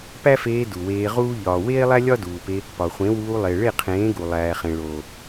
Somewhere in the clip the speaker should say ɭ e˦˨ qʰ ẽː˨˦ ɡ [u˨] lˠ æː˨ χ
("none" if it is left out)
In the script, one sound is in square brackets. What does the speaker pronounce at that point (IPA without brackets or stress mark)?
u˨